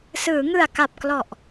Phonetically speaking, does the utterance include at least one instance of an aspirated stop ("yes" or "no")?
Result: no